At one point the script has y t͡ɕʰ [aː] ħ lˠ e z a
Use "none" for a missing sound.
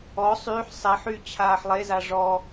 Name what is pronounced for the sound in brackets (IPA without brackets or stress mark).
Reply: aː